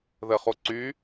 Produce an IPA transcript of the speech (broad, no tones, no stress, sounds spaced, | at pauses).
ð ə χ o ǀ y